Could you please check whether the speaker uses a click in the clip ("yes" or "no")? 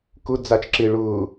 yes